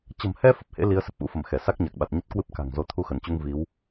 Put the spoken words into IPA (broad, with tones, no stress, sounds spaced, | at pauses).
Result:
t͡ɕ ə̤˨˩ m h ɛ˧ f ə˨˩ p̚ h ḛ˧˥ l i˨˦ ə̯ s ə˨˩ p̚ ʔ ṵ˧˥ f ə˧˩ m x ɛ˧˩ s a˦˥ k̚ ɲ a˨˩ k̚ ɓ a˨˩ t̚ ɲ ə˦˥ t̚ k w ɨ˦˥ p̚ k a̤˨˩ ŋ z o˨˦ t̪ʰ u˧ x ə˧˩ n t͡ɕ u˧ ŋ v i˨˦ w